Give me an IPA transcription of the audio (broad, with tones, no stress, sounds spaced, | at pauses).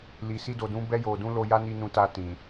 l i˨ s i˧ d o˨ d ũ˨˦ b ɛ˧ j o˨ d ũ˨˦ l o˧ j a˦ n i˧ n ũ˧ t a˧ t ĩ˨